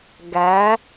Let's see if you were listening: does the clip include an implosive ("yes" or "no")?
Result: no